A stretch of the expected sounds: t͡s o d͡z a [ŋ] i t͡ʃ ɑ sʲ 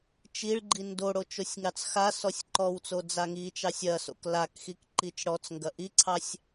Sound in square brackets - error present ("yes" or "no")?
no